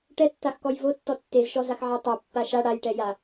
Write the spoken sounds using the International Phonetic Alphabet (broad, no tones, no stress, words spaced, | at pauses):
ʈɛtːaxkɔj votːɔ tːezʃɔzaxʕa tˤapːa ʃa ɽajʈɛja